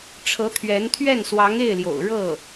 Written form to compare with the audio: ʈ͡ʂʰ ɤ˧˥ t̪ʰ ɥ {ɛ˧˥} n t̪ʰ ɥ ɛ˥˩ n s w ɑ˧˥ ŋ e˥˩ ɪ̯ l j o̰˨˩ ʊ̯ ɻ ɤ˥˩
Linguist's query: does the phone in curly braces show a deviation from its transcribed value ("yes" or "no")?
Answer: no